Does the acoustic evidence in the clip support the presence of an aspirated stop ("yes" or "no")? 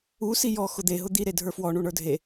no